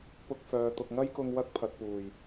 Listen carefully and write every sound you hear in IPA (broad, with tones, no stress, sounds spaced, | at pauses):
p ʊ˧ k̚ f œː˨ t̪ ʊ˨ k̚ ŋ ɐ˥ j k ʊ˧ ŋ w ɐ˥ k̚ pʰ ɐ˨ t̚ p uː˨˩ j